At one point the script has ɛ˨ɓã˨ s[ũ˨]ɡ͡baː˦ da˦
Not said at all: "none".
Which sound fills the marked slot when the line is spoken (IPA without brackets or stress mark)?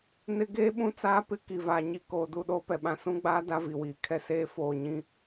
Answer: ũ˦